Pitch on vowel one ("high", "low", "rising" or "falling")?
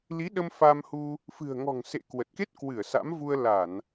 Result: rising